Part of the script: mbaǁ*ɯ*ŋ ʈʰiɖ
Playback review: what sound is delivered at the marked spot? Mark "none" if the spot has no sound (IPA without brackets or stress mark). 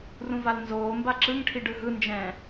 ɯ